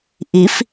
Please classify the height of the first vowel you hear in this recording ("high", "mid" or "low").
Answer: high